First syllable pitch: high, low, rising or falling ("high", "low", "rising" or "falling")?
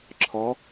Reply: rising